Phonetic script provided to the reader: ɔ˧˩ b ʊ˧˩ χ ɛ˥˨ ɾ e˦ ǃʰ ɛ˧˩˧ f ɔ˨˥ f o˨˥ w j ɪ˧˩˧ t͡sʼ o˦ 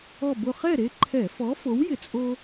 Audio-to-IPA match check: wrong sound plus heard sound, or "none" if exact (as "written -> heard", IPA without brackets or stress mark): none